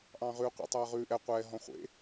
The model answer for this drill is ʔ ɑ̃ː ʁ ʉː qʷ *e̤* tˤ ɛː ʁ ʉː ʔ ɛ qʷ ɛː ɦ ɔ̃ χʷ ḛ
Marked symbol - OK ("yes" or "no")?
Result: no